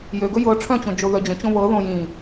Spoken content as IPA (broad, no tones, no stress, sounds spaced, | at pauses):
j ø ɡ ɵ j ɤ ʈ͡ʂʰ œ̃ t͡ɕ õ d͡ʒ o ð œ d͡ʑ ə̃ t͡ɕ õ β ɤ ð õ j ĩ